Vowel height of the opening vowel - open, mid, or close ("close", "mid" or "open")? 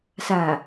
open